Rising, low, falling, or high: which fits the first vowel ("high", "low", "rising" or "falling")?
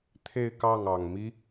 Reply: falling